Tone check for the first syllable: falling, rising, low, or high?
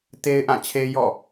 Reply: high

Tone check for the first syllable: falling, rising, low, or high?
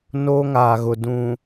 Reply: high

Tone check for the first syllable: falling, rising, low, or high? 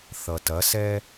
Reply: low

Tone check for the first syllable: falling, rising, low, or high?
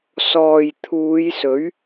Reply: low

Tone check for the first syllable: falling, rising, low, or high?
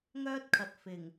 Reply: high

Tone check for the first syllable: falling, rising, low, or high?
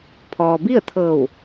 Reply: low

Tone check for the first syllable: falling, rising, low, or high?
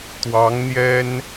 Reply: rising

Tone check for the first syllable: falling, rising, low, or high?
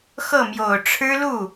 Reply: falling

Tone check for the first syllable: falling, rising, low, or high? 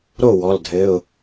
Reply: falling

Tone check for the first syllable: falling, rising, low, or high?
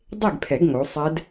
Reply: falling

